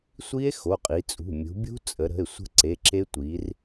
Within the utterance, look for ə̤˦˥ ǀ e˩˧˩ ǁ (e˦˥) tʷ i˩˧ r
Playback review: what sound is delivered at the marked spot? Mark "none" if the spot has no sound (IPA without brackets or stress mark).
e˦˥